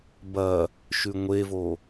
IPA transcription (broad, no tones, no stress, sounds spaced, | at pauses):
b ɐ | ʃ ʉ ŋʷ e v o